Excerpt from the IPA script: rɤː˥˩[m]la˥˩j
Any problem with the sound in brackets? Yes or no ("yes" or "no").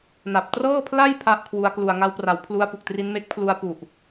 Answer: yes